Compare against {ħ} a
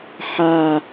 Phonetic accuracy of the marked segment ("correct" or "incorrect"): correct